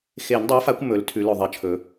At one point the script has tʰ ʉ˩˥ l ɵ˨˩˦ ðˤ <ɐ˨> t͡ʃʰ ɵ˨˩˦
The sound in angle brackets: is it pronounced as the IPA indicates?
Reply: yes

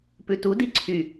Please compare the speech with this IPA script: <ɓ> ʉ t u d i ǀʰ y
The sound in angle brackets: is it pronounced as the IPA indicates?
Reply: no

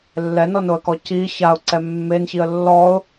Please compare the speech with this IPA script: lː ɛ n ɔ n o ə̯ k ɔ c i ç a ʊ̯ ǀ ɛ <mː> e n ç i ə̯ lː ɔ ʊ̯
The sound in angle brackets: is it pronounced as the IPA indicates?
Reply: yes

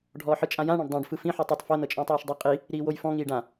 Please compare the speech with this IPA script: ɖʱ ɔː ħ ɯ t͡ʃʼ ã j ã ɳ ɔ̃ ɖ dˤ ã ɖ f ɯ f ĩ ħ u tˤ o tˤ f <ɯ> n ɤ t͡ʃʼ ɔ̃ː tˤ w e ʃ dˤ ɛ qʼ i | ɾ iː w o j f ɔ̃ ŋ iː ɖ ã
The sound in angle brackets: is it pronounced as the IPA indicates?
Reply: no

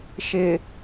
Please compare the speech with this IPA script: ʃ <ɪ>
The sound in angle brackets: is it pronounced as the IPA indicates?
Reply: yes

